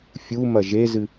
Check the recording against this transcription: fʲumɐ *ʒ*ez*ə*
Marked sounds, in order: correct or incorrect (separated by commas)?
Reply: correct, incorrect